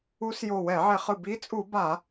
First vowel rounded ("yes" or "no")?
yes